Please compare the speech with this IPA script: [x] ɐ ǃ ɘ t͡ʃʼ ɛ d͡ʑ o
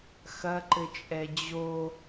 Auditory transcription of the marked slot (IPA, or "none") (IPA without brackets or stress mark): x